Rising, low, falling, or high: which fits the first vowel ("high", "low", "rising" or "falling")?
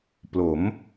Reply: rising